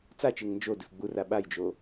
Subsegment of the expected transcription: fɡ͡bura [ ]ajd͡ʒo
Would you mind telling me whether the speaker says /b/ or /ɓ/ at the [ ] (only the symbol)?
ɓ